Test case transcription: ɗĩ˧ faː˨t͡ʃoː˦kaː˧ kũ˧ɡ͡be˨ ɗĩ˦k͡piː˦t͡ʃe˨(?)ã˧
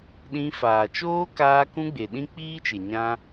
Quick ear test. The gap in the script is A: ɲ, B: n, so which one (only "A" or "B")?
A